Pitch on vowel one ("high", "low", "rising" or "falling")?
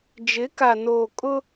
rising